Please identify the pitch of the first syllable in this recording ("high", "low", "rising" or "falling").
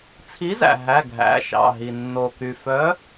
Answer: rising